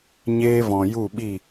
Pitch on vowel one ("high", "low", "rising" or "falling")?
high